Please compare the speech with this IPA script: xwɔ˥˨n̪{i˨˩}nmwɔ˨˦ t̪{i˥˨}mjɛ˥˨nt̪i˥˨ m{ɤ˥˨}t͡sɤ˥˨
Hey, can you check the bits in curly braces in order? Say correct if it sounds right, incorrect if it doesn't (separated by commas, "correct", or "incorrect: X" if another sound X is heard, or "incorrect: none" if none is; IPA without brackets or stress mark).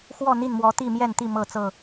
incorrect: i˥˨, correct, correct